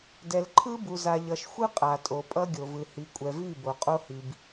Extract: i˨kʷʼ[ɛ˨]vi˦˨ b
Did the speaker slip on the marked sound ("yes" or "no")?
no